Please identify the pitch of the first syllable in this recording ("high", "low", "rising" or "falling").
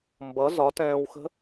rising